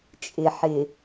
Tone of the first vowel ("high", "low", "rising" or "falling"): low